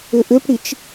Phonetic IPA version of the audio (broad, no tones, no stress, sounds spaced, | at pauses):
ʏ ʔ ʏ p ɽ i t͡ʃ